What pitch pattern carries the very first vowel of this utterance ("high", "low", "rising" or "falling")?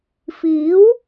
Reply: rising